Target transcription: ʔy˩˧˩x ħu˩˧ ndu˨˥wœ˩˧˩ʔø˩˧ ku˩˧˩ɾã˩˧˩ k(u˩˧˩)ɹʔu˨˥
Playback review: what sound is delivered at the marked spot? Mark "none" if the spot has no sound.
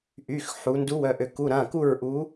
u˥˩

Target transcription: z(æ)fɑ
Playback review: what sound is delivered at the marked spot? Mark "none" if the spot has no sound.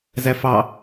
æ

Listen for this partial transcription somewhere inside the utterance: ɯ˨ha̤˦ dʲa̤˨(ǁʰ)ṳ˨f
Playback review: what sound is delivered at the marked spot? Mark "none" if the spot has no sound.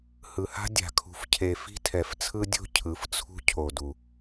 kʰ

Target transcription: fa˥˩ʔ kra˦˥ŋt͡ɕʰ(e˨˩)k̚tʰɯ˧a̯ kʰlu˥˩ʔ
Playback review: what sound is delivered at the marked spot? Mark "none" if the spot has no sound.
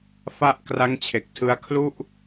e˨˩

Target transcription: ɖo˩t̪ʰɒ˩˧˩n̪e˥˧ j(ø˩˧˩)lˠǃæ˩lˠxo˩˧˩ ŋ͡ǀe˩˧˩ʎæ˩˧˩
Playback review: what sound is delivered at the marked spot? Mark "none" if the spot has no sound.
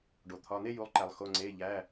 u˩˧˩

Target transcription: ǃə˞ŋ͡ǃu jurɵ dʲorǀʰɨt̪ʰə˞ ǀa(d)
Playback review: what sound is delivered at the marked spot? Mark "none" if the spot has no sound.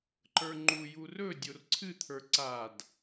d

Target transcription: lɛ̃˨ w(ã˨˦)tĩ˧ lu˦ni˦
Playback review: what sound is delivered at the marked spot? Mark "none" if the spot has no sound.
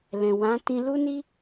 ã˨˦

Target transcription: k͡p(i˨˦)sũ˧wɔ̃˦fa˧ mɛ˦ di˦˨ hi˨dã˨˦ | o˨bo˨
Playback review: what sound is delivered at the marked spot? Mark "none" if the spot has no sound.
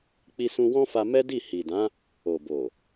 i˧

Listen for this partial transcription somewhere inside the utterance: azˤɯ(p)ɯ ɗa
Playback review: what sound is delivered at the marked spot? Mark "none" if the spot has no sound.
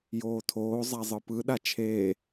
p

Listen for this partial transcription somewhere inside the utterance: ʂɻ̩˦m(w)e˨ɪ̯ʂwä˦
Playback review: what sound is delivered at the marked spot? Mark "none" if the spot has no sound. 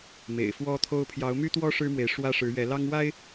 w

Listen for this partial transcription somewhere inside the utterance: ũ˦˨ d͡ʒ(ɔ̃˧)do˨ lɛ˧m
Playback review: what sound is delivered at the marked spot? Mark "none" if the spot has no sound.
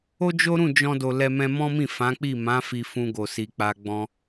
ɔ̃˧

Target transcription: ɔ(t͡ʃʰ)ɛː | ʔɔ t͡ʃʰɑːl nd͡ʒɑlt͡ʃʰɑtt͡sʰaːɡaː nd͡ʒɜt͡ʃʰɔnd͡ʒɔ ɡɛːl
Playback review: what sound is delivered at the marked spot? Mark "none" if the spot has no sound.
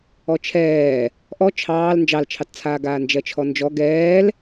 t͡ʃʰ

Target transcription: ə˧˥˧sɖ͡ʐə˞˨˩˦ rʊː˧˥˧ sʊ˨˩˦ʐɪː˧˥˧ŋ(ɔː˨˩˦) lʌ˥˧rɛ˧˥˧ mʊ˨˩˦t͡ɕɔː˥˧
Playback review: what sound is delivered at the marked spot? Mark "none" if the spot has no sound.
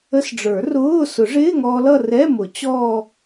ɔː˧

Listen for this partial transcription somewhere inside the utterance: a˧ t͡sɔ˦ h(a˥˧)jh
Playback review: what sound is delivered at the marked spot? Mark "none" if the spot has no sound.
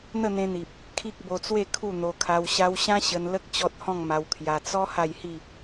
a˥˧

